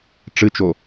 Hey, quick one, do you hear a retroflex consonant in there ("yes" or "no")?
yes